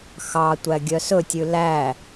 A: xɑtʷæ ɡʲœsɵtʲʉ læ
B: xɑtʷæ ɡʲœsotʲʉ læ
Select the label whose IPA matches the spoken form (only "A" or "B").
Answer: A